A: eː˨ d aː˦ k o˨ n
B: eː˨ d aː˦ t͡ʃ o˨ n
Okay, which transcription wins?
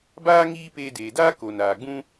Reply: A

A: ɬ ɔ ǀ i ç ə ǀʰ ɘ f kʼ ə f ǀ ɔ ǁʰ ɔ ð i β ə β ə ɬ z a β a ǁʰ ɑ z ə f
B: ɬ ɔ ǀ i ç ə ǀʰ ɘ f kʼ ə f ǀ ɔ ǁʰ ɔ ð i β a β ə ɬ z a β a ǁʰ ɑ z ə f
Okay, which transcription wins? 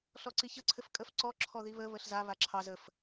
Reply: A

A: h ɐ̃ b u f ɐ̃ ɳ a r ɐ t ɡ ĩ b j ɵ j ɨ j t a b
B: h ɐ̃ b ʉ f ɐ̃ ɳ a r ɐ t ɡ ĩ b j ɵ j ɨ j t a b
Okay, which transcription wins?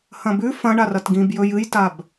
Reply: B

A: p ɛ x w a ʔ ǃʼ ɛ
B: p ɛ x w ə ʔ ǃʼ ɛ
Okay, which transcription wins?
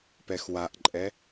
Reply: A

